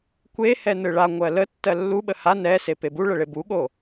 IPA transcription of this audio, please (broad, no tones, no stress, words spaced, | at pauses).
kʷehɛ nɯɭa ŋʷɜlə tːɜlːuɓə ha nɛ sepebu ɭəɭebuɠo